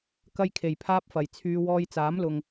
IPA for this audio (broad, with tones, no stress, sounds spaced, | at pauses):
k ɐ˥ j kʰ e˨˩ j pʰ aː˥ p̚ f ɐ˨˩ j t͡sʰ yː˧ w ɔː˧ j t͡s aː˨˥ m l ʊ˨ ŋ